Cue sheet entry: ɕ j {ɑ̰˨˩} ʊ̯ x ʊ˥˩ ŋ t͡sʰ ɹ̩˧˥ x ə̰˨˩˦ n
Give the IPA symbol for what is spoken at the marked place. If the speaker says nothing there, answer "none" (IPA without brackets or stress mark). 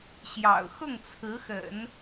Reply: ɑ̰˨˩